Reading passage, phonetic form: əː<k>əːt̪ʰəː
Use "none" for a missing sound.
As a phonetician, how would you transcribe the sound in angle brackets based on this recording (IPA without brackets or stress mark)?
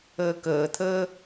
k